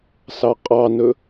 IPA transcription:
s ɑ qʼ ɑ n ɵ

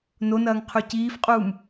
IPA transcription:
n o n ɐː ŋ qʰ ʉ c iː f qʼ uː m

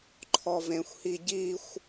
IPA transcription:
ǃʰ ɔ v ẽ xʷ h i ɟ i xʷ

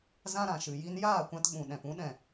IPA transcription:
z ã˦ ɾ ã˨ ʃ ɨ˨ j i˧ n j aː˦˨ kʷ ã˧ t ɓ ũ˨ ɗ ɛ̃˨ p ũ˨˦ ɗ ɛ̃˨

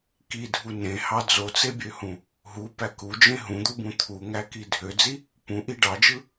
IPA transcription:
k i dʱ u n ẽ h ɑ d͡z o t͡s e bʲ ø h ũ | ɦ u p æ k u d͡ʒ ẽ ɦ ũ d̪ u b ũ t̪ʰ u ŋ æ k i dʱ ø d͡z i | p ũ ʔ i ɖ ɑ d͡ʒ ɯ

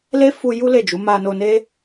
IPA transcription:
l e˦ f u˧ j u˦ l e˦˨ d͡ʒ u˨˦ m a˧ n o˧ n e˦

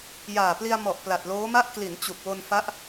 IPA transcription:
j aː˨˩ p l i˧ a̯ m ɔ˨˩ ʔ p l a˨˩ t̚ l oː˦˥ m a˥˩ ʔ k l i˩˦ n t͡ɕ u˨˩ k̚ w o˧ n f a˦˥ ʔ

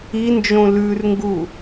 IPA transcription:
i n d͡ʒ õ l ʉ r ŋ ɡ u

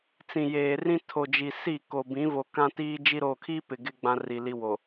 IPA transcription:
t͡s ĩ˨ j eː˨ r ĩ˦ tʰ o˨ d͡ʒ i˨ s i˦˨ k o˨ b ĩ˨˦ v o˨ k ã˦ t iː˦ d͡ʒ i˦ ɾ o˨ kʰ i˦ p ɪ˨ ɡ ɪ˦ ɡ͡b ã˦ r i˨ l i˦ w o˨

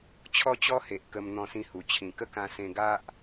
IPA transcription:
t͡ɕʰ ɔ˦ t͡ɕ ɔ˦ h e˨ ʔ k ə˧ m n̪ ɔ̃˧ s ĩ˧ h u˨˩ t͡ɕʰ ĩ˨˩ k ə˥˧ k ã˧ s ẽ˧ ɡ a˦ ʔ

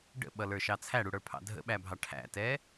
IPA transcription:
ɖ ə̰ ɓ ʌ l ə˞ ʃ ɑ t͡sʰ æ ɽ u ɽ ə˞ pʰ ɑ̰ dʱ ə̰ ɓ æ bʱ ɑ ʈʰ æ̰ t ɛ

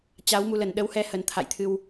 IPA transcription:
t͡ɕ a˨˦ w m u˧ l ə˨˩ n ɗ ə˨˦ w h ɛ˧ h ə˨˩ n t̪ʰ a̰˧˨ j t̪ʰ ɨ˧ w

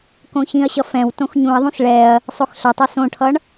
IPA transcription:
k õ ç ĩ ɐ̯ ɕ ʌ f ɛ̃ w t õ x ɲ ũ ɐ̯ ðˤ ũ s ɭ ɛ ɐ̯ | sˤ o x ɬ ɐ tˤ ø s õ ʈʰ ʌ ɳ

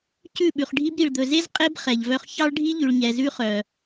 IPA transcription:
c ʉ˦˨ ɓ ʉ˨ χ ɖʱ i˦ b ɾ i˨ ɭ d̪ ɵ˨ z e˦ z qʼ e˦ b χ ɛ˨ ʎ v œ˦ χ ç ɑ˦ ɭ ɖʱ i˦ ʎ ʉ˨ ɭ ɲ ɛ˨ z ʉ˦ χ œ˨

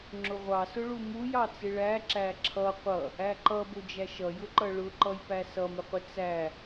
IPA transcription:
ŋ͡ǁ ʊ ʁʷ ɑ s ʊ ɭ u m u j ɑ t͡s ɪ ɭ æ ǁ æ ǁʰ ʌ qʷ ʌ | æ ǃ ʌ b ʊ d͡ʒ æ ʃ ʌ j ʊ ǃ ʌ ɭ ʊ ǃ ʌ j p æ s ʌ m ɪ qʷ ɪ t͡s æ

